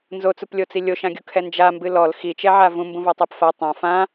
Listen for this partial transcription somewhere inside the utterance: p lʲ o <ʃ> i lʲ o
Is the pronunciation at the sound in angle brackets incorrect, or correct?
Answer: incorrect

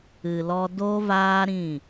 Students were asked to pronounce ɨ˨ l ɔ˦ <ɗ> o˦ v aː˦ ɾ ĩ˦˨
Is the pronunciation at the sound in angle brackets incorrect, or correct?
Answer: incorrect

